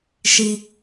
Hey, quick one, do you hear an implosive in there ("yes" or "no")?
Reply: no